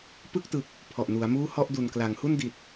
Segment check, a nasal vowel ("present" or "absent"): absent